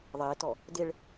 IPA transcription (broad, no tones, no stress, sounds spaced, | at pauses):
ðˤ ɪː t ɔ | d ɪ ɭ